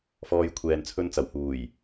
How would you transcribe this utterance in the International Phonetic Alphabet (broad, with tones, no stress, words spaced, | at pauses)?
fɔː˨˧jkʷʰɛː˨nt͡sʰɵ˧nt͡sɐ˨˩w huː˨˩j